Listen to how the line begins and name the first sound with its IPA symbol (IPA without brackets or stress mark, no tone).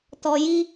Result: t